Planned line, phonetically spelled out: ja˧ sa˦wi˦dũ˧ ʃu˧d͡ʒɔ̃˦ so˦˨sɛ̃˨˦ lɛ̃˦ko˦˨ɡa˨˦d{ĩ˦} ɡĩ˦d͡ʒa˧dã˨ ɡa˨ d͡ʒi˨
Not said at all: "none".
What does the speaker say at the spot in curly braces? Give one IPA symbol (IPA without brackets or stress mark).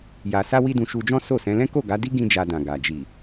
i˦